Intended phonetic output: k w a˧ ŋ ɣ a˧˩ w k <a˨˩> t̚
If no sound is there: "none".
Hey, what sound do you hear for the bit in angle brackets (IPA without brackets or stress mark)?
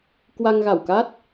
a˦˥